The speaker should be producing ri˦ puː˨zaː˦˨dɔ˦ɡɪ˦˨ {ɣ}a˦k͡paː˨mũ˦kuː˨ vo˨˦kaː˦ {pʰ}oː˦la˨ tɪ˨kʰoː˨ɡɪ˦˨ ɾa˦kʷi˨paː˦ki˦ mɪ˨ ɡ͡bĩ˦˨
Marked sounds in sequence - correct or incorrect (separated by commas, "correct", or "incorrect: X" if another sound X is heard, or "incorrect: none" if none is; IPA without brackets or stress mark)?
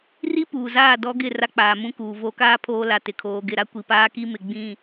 incorrect: r, correct